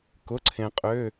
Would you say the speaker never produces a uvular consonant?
no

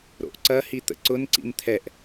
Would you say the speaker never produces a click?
no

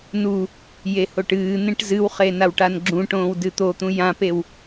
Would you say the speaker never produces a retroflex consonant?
no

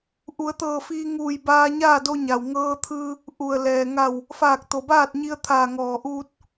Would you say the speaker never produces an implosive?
yes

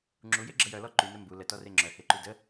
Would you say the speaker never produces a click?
no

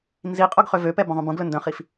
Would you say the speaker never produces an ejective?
no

